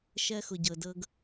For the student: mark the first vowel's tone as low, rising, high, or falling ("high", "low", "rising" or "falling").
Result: high